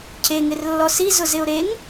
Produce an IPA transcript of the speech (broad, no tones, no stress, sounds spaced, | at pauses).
cʰ e ŋ ɪ r lː ɔ s i z ʊ z ɪ ʊ̯ ɾ e ŋ